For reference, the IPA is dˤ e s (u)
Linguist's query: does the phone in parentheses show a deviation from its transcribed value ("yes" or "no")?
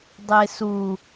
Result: no